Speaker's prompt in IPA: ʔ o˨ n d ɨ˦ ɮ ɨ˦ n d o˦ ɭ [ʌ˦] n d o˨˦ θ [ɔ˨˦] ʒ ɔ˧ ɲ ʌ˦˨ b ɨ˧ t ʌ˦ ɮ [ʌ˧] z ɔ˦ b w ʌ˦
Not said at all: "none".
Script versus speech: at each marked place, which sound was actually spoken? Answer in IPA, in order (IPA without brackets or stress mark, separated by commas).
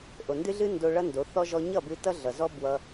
ʌ˦, ɔ˦, ʌ˨